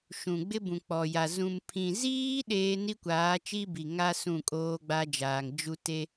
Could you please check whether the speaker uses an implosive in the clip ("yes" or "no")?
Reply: yes